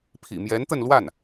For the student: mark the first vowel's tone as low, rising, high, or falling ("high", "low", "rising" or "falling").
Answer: low